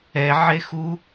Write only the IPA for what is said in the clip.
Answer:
ɛʕe xu

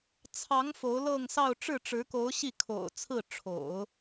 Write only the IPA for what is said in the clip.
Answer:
t͡sʰɑ˧˥ŋ fo˧˥ʊ̯lɤ˥˧ŋsɑ˥˧ʊ̯ ʈ͡ʂɻ̩˥˩ʈ͡ʂɻ̩˧˥ko˧˥ʊ̯ɕi˥˩ kʰo̰˨˩ʊ̯ t͡sʰɹ̩˥˩ ʈ͡ʂʰo̰˨˩˦ʊ̯

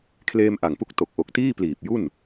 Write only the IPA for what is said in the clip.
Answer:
kʰleː˧mʔa˨˩ŋpu˦˥k̚ to˨˩k̚ʔo˨˩k̚tiː˥˩pliː˨˩p̚ ju˥˩n

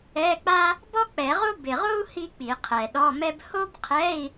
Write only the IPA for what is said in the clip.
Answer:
ɛ˧˥˧k͡pa˥ | bɔ˥k͡pɛ˨˩˦ʁo˥ bɪ˨˩ʁo˥u̯ hi˥k͡pi˨˩˦ qʰɛ˨˩ɗɔ˧˥˧mɛ˥b ho˥bqʰɛ˧˥˧i̯

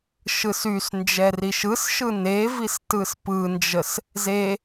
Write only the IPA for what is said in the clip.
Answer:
ʃɯsys nd͡ʒɛriʃɯsʃɯ nevis tɯspɯnd͡ʒəs | ze

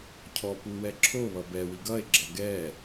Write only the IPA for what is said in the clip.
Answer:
cʰɔpuwɛ ǁʰoβʌ bɛwi ɡʌe̯ɡ͡ǁʌ ɡɛ

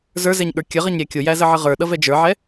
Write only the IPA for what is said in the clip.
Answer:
zə˞zɛɲ ɠə˞kʲəʁʌɲ ɾʲækʲʊjæ zəʕəʁə˞ɗʌ vɛd͡ʒə˞ʕɛ

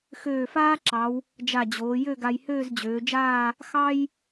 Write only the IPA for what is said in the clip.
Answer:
xøː˧˩faː˥ǁɑ˩˧w | d͡ʒa˧˩d͡ʑoː˩˧ jø˥˧ɡa˧j høː˥˧zd͡ʑøː˩˧d͡ʒaː˥˧ | xɑ˥j

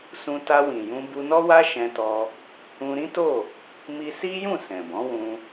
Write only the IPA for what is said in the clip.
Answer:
sũ˧ta˧wĩ˨jũ˧ bu˧nɔ˦wa˦ ʃɛ̃˧tɔ˧ | ũ˧ɾĩ˦to˦˨ | mi˧si˦jũ˦˨ sɛ̃˨bɔ̃˨˦wũ˧

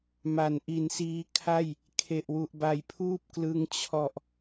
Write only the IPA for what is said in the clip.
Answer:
ma˩˦nʔi˩˦nsiː˧kʰa˥˩j | kʰe˨˩ʔwu˨˩ʔba˨˩jpʰuː˥˩p̚ klɯ˧ŋ t͡ɕʰɔ˨˩ʔ

